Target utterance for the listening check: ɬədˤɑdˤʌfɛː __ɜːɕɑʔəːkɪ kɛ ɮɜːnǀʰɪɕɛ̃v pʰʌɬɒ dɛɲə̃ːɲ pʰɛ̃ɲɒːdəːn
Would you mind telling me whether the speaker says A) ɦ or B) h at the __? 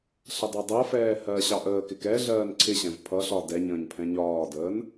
B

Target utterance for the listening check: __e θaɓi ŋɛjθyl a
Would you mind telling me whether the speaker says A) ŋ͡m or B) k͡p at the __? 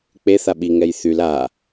B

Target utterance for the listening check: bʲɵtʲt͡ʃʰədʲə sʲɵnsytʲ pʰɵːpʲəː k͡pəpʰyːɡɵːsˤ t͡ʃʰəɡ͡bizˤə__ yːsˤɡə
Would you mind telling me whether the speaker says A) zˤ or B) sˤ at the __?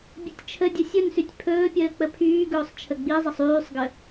B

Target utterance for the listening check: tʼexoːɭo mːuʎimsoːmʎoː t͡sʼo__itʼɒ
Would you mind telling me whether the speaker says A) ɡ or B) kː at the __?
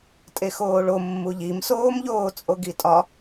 A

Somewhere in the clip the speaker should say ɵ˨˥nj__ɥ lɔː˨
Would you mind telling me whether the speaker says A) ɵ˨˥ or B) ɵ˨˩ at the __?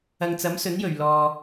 B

